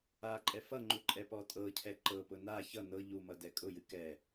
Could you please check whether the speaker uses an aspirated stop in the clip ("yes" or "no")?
yes